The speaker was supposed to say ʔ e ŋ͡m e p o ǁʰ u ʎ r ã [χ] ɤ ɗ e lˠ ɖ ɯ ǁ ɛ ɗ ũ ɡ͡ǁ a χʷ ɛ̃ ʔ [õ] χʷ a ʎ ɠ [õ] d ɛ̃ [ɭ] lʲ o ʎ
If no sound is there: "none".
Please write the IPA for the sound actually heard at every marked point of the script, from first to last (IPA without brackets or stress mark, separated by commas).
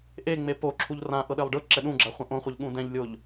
ʔ, õ, ũ, ʎ